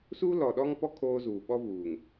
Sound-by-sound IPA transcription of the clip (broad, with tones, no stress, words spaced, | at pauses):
su˦lɔ˨ɗɔ˦ŋpɔ˦ kʰoː˦ zuː˨ɓɔ˦vuː˨ŋ